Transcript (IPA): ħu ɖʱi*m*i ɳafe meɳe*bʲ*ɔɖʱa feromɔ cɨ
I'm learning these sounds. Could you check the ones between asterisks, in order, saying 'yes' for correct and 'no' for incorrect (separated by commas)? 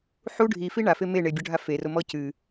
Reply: no, yes